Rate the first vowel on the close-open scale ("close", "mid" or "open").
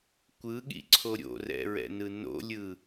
close